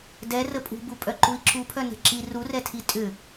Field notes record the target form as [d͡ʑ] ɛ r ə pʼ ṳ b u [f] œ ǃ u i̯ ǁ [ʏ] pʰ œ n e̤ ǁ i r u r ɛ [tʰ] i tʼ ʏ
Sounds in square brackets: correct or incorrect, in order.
incorrect: d, incorrect: pʼ, incorrect: u, correct

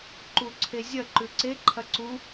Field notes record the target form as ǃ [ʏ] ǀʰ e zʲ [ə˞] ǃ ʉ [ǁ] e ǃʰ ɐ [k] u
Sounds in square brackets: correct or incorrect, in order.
incorrect: u, incorrect: ɐ, incorrect: ǀ, incorrect: ǀ

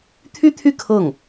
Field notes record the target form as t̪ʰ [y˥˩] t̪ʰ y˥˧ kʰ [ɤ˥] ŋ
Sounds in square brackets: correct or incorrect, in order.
incorrect: y˥, incorrect: ɤ˥˩

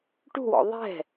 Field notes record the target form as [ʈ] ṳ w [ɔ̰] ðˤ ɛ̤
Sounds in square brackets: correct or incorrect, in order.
correct, correct

